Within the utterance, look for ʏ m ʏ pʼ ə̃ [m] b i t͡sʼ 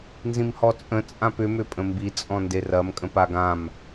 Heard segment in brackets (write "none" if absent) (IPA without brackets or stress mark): m